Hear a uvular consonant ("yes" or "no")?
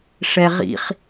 yes